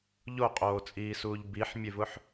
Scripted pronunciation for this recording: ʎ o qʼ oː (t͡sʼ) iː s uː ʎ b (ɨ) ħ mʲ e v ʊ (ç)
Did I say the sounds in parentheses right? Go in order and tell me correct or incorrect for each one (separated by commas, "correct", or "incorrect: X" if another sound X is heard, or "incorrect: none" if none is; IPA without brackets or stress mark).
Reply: correct, incorrect: i, incorrect: ħ